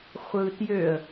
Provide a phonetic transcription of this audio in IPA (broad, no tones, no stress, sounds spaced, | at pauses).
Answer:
χʷ ɯ t j ø ə̯